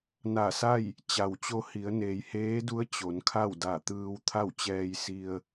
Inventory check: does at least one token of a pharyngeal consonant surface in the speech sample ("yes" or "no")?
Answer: no